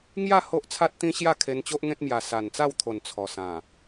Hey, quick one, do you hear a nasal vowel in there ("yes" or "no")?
yes